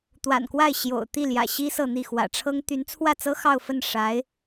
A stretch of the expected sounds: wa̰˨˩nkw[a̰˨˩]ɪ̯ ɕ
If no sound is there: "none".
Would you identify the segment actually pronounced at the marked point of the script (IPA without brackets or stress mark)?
a˥˩